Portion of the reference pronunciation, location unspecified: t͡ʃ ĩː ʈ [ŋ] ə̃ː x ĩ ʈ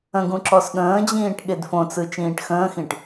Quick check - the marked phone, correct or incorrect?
incorrect